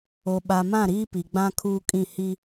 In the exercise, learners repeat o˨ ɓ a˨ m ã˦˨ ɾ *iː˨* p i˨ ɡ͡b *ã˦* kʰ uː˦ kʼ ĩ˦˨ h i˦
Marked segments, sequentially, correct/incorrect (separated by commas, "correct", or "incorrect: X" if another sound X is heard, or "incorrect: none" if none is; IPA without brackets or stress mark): incorrect: iː˦, correct